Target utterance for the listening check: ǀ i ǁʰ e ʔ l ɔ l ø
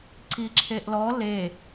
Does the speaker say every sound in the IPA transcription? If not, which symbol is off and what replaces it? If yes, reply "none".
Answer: ø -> e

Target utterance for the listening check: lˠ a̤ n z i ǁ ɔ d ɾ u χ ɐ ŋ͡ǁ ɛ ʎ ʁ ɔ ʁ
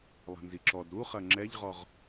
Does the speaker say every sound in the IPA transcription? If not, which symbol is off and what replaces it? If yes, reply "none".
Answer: none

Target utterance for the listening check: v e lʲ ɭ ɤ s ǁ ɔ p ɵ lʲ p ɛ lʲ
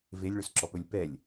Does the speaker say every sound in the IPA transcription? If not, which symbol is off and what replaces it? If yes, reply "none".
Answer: ɤ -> ɵ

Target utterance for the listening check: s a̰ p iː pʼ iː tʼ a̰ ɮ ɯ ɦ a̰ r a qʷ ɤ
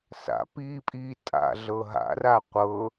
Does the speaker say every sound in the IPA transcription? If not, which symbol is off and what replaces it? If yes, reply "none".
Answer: ɯ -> ɤ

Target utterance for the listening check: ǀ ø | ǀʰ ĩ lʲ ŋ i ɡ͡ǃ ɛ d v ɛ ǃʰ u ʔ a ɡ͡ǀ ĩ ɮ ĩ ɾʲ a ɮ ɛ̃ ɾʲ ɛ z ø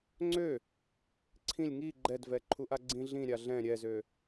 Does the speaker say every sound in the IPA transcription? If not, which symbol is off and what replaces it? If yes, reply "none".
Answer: ǀ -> ŋ͡ǀ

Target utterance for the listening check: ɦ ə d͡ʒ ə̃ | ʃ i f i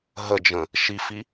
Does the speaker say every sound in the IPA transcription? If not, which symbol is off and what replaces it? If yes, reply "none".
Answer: none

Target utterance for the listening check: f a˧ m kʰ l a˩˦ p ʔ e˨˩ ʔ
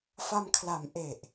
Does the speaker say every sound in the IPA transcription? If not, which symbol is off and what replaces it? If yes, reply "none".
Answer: p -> m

